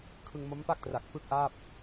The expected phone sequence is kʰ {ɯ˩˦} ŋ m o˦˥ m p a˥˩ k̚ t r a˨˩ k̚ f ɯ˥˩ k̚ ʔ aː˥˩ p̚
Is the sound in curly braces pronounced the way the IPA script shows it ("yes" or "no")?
no